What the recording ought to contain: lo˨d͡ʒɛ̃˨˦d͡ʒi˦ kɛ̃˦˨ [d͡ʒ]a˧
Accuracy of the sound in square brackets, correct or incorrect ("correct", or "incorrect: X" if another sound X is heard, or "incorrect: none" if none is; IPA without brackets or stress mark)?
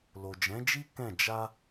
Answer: correct